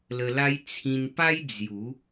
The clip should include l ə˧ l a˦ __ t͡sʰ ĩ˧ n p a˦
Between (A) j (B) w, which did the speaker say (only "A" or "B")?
A